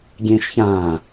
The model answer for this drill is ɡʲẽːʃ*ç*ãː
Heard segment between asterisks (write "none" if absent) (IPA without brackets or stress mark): ç